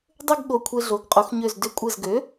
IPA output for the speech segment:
dˤɘ˥˧ɡ ɠo˧˩kʷʰe˧ɮo˩˥ɡ qʼo˩˥xɲø˧˩z dʏ˧˩kʷʼɘ˧˩zɡø˩˥

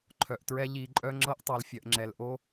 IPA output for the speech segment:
ǃʰœ˨ʔtɹɛ˦ ʎi˨ǃʼœ˧ŋ͡ǁɤ˧ʔ tˤo˨lfʲœ˨ʔŋ͡ǁɛ˨l ʔo˧

